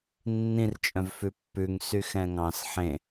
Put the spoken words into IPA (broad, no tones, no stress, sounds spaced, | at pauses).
nː ĩ r t͡ʃʼ œ̃ v f ʉ pː ʉ ŋ s y x ɛ̃ ŋ ɑ̃ s ħ ẽ